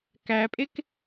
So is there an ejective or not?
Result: yes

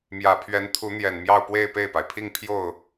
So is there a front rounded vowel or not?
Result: no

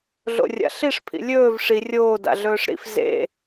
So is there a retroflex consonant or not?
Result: yes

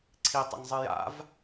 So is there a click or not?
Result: yes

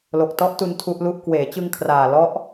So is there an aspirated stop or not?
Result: yes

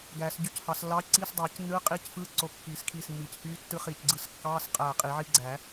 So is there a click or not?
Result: yes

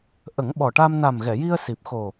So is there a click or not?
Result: no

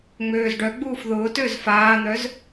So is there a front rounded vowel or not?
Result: yes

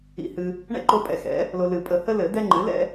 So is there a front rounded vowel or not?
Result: no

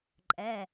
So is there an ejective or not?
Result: yes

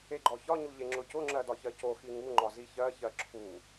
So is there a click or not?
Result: yes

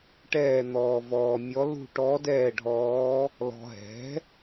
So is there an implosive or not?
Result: no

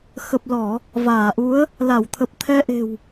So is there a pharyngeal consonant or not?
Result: no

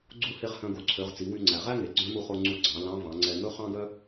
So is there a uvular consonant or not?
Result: yes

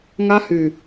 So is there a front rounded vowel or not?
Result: yes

